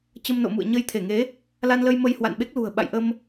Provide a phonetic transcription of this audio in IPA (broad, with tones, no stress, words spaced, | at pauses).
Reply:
t͡ɕə˧mno̰˧˨mṵ˧˨ə̯ ɲə˧jt̪ʰe˧˩ŋe˨˦ | la˧nlə˧j mə˧jhwa̰˧˨nɓe˦˥k̚ lṳ˨˩ə̯ ɓa̰˧˨jʔə˧m